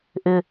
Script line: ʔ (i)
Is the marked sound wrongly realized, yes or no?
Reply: yes